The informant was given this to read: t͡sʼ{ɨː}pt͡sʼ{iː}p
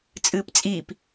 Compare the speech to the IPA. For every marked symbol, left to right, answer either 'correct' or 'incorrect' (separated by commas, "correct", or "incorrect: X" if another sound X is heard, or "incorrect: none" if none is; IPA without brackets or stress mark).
correct, correct